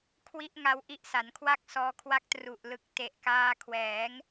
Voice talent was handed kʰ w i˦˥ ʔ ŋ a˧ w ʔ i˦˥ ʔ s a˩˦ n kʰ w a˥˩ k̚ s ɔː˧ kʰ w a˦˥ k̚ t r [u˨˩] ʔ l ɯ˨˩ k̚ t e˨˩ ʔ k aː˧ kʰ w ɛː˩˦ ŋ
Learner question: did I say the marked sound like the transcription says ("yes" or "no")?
yes